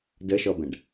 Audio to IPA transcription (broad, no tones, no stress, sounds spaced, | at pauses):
d ə ʃ ɔ b ɛ̃ ɖ